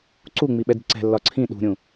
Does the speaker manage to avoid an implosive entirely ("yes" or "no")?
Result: no